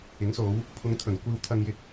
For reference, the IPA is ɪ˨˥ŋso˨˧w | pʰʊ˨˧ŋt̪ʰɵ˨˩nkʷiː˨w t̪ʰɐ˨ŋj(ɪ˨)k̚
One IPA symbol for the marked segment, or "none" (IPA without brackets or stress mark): ɪ˨